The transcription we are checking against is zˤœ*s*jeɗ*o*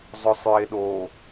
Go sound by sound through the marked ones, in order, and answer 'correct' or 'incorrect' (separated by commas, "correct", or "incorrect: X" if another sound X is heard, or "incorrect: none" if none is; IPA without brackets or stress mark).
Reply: incorrect: sˤ, correct